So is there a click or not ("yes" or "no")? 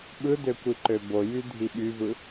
yes